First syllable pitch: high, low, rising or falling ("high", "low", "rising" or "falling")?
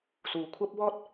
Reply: low